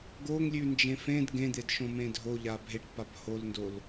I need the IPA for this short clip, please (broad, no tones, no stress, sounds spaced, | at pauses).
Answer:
ɡ o ŋ lʲ ʉ n d͡ʒ ẽ f ẽ d ɡ ẽ d̪ e d ʃ õ m ẽ dʱ o ʎ a bʱ e ʈ p a b h o l n d o l